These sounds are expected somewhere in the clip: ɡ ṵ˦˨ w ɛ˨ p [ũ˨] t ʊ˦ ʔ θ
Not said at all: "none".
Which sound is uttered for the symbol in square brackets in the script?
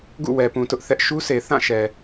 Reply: ũ˨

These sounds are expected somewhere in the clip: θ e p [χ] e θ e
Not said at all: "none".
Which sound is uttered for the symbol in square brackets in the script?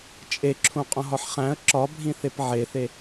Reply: ʕ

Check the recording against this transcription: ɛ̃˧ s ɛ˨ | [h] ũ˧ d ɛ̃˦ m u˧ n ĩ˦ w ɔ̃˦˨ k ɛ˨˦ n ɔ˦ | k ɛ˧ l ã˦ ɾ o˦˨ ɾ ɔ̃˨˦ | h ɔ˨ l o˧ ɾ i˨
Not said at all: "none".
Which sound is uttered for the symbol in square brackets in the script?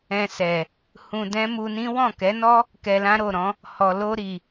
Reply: h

